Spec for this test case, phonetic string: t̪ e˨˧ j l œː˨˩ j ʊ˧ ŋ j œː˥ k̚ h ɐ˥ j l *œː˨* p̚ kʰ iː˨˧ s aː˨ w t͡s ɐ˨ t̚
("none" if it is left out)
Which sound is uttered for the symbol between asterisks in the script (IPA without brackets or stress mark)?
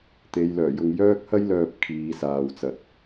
œː˨